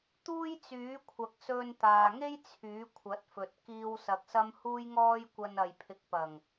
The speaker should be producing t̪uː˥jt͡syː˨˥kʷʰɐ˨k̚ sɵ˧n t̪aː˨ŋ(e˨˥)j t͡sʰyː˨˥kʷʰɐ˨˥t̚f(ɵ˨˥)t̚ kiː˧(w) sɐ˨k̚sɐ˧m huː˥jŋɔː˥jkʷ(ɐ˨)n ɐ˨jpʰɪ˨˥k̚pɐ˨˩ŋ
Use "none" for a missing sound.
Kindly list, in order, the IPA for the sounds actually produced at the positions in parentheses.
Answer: e˥, ɵ˨, w, ɐ˧

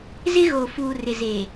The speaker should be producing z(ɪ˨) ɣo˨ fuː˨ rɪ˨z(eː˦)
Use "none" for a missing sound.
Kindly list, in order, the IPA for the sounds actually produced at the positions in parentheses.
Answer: ɪ˦, eː˨

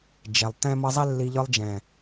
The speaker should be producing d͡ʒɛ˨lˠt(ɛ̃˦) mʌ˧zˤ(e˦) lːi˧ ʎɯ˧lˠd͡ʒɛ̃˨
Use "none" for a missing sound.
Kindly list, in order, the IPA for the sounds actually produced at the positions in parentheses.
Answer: ɛ̃˦, e˦

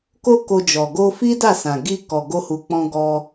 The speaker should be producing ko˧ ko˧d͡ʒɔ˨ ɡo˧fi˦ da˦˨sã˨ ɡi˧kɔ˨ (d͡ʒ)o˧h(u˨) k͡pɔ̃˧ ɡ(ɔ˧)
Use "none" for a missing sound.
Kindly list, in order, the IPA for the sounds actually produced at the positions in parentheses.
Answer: ɡ, u˨, ɔ˧

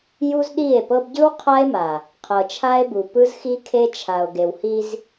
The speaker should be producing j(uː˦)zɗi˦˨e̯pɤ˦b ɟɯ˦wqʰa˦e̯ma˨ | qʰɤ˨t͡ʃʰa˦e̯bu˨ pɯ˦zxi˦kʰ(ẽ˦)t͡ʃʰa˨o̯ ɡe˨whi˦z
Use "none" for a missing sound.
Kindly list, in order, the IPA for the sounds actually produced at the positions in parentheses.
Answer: u˦, e˦

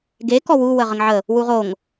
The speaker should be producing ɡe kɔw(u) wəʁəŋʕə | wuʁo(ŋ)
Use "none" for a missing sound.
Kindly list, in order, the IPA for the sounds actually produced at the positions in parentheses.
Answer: u, ŋ

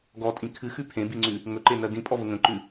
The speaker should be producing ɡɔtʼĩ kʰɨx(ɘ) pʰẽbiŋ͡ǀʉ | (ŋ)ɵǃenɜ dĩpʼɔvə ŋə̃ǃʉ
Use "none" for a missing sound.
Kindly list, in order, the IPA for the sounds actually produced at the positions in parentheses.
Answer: ʉ, ŋ

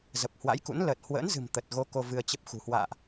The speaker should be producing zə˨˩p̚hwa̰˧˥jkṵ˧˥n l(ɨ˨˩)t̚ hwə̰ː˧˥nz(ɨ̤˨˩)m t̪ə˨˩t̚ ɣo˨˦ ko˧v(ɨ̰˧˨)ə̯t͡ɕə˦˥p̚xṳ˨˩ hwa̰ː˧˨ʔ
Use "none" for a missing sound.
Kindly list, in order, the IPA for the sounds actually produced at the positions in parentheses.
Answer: ə˨˩, ɨ̤˨˩, ɨ˧

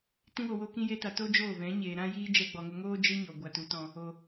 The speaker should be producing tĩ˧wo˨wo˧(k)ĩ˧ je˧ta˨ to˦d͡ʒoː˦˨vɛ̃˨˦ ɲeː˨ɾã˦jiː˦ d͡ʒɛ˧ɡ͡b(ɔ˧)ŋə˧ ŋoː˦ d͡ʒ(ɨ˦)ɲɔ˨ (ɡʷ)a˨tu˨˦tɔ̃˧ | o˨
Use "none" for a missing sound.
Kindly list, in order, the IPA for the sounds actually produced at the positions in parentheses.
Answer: k, ɔ˨, ɨ˦, ɡʷ

